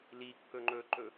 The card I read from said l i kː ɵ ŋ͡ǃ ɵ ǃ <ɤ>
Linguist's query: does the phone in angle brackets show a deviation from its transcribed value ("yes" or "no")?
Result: yes